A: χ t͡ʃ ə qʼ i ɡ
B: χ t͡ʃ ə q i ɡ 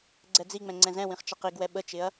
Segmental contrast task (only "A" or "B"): B